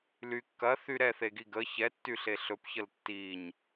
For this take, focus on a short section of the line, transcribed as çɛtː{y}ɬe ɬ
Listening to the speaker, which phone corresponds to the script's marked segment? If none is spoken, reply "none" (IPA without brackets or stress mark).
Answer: y